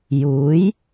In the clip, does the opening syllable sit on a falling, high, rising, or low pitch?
rising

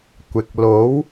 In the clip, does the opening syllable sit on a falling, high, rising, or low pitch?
low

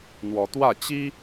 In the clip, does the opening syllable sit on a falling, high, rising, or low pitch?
rising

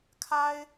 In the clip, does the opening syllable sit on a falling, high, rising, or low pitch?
high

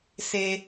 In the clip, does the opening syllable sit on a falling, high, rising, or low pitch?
high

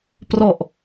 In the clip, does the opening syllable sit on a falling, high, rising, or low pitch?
low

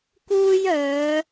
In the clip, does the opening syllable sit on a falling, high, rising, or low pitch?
high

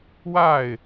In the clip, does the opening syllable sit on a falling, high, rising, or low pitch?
falling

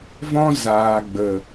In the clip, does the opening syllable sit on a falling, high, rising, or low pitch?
high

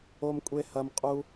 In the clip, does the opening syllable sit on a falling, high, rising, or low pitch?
high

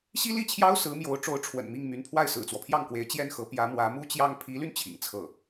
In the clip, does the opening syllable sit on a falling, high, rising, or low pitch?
high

